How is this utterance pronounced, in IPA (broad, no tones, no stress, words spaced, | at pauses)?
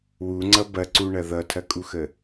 wuŋ͡ǀʌ bɐǀuɳɐ ðʌtʰɐkʼuxə